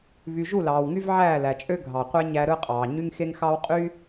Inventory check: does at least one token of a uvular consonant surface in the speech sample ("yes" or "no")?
yes